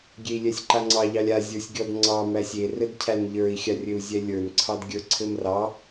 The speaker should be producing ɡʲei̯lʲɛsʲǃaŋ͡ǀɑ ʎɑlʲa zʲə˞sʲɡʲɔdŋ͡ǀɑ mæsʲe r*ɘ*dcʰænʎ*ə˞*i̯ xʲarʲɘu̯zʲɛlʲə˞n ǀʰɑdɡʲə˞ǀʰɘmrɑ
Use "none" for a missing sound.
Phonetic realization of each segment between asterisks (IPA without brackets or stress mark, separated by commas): ɘ, ə˞